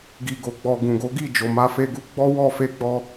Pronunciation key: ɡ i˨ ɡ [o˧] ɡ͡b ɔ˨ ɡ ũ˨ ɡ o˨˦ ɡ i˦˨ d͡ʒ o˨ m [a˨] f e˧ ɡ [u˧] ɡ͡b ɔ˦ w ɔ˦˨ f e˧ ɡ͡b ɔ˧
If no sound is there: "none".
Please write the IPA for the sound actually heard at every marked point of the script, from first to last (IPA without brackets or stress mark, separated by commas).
o˨, a˧, u˧